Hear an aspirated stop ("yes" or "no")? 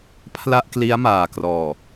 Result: yes